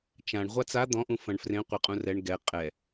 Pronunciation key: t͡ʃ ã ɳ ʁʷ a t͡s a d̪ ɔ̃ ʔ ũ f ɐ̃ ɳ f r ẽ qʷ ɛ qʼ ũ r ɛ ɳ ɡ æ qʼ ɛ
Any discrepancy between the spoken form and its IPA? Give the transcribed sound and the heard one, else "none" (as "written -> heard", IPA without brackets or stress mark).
æ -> ɛ